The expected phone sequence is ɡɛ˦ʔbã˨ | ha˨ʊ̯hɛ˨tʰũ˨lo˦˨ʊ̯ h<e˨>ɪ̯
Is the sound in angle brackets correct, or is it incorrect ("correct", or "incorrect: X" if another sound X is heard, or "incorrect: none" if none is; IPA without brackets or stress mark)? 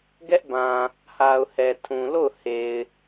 correct